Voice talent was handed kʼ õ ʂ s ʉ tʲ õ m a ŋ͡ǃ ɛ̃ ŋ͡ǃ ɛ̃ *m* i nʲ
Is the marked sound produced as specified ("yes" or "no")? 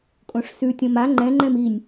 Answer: yes